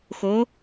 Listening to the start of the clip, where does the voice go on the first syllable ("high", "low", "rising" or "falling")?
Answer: rising